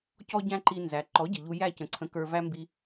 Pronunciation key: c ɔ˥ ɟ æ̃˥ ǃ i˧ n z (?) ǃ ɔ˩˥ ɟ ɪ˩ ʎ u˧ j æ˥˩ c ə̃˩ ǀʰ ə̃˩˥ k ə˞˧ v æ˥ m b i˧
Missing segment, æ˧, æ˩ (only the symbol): æ˩